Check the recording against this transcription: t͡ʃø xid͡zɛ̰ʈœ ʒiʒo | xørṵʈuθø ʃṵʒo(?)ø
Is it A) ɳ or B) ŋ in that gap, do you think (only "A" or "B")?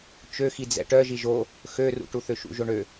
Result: A